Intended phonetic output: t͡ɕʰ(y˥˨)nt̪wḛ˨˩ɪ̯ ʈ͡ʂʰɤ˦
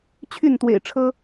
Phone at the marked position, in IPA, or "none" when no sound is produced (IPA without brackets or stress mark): y˥˨